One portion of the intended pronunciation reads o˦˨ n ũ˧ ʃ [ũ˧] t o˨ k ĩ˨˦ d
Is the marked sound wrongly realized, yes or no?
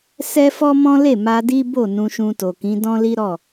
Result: no